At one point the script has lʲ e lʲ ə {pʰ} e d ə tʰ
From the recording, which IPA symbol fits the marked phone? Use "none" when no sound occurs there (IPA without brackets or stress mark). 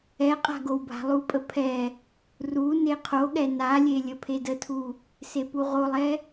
pʰ